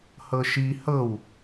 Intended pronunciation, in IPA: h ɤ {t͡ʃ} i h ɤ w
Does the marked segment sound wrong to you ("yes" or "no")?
yes